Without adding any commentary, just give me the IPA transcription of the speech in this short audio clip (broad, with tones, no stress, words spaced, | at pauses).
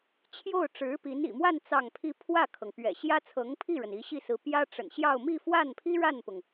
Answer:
t͡ɕʰjo˥˩ʊ̯ ʈ͡ʂɻ̩˧˥pi˧˥n ḭ˨˩mwa˥˧n t͡sɑ˥˩ŋpʰi˥ pʰwä˥˩kʰɤ˩ŋ pɥɛ̰˨˩ɕjä˥ t͡sʰɤ˧˥ŋpʰi˥˩ɻə˩n i˧˥ɕi˥˩sɹ̩˧˥pjä˥ ʈ͡ʂə̰˨˩nɕjɑ˥˧ʊ̯ mi˥˧fwa˥˩npʰi˥ ɻa˥˩npʊ˩ŋ